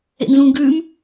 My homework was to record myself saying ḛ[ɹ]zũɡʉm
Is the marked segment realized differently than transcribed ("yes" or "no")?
yes